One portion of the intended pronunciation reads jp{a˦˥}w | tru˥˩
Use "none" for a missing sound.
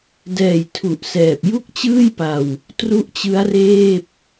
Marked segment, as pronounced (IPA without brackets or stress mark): a˧